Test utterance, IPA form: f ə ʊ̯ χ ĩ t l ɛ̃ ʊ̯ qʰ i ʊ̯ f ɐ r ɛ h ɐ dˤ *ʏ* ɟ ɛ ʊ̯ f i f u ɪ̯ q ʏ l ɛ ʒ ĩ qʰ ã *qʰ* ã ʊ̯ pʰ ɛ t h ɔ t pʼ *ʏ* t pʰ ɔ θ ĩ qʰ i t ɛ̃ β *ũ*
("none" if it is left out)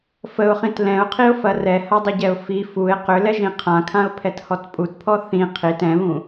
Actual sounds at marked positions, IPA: ʏ, kʰ, u, ũ

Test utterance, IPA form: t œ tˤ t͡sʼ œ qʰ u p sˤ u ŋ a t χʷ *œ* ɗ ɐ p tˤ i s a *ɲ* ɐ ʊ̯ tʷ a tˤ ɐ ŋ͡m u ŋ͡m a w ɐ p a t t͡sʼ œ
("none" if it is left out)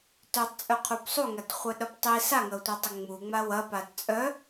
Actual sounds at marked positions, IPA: œ, ŋ

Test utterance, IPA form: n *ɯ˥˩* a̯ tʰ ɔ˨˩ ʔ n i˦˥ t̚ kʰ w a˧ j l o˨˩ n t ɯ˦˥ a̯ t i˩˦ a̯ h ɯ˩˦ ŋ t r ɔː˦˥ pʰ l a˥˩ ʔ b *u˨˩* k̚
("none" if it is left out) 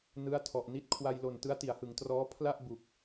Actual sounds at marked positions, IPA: ɯ˦˥, u˨˩

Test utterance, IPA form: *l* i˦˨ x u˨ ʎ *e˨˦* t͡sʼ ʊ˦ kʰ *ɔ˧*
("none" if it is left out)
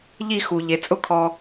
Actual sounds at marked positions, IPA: ʎ, e˨, ɔ˧

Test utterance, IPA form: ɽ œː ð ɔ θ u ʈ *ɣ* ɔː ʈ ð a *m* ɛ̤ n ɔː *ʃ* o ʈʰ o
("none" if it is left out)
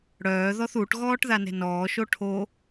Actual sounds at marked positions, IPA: ɣ, n, ʃ

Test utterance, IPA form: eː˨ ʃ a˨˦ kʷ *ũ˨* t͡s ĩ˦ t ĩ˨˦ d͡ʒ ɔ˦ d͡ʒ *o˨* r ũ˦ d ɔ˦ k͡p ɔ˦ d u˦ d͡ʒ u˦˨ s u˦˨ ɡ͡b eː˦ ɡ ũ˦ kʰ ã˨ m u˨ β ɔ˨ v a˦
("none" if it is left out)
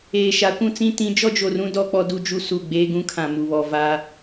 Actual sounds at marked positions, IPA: ũ˦, o˨

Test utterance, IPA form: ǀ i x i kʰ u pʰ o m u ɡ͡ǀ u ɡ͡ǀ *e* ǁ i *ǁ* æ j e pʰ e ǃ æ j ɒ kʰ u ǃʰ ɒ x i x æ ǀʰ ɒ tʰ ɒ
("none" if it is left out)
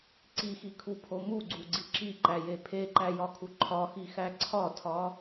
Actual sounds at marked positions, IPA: i, ǃ

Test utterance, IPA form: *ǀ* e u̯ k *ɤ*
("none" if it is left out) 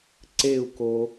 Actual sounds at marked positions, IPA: ǀ, o

